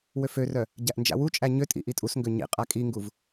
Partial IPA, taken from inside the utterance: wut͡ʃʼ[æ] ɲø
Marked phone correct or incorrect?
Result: correct